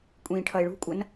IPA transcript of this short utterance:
kʷʼ ĩː ʈʰ ʌ e̯ ɭ ṳ kʷʼ ʌ n

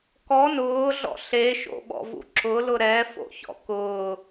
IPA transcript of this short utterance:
k ɔ n ʊː ɮ ɔ̰ ɬ e ʃ o̰ ɓ ɔ̰ v ṵ ǁ ʊ l ʊ ɾ ɛ f o̰ ç ɔ̰ k ʊː

